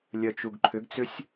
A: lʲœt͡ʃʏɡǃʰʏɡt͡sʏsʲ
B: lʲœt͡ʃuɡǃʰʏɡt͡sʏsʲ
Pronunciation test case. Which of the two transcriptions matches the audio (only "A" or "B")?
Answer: B